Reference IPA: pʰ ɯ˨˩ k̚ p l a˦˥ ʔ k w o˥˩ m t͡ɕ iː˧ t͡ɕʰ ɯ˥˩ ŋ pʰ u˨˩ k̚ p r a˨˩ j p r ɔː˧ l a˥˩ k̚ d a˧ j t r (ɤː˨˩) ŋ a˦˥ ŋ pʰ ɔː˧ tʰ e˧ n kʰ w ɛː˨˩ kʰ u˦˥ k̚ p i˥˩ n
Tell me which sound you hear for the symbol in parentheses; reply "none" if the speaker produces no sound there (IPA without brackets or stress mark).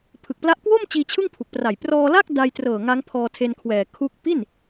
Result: ɤː˨˩